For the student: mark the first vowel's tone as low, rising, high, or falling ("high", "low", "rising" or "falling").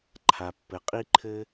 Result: low